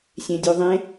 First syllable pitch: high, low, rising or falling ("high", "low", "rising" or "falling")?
low